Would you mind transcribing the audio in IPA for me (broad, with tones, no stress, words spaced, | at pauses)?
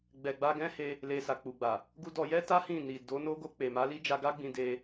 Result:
ɡ͡bɛ˨ɡ͡ba˧ɡɛ̃˦he˧ | le˨ sa˨k͡pu˨ɡ͡ba˨ | ɡu˦dɔ˧ jɛ˦ ta˦ hĩ˦˨ni˨ do˨˦no˦ɡo˧ k͡pe˨ma˨˦li˦ d͡ʒa˧ɡa˦ɡ͡bĩ˧de˧